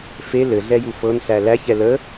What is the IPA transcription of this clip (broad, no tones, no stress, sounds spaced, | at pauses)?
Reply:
f e l ɘ ɮ ɛ j u f ɤ n ɬ æ l æ ç ɛ l ə